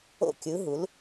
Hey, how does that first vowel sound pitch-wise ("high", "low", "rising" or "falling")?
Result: falling